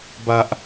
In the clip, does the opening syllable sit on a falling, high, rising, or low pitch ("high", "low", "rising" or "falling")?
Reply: high